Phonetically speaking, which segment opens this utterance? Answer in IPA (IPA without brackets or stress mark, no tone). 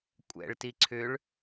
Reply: kʷʼ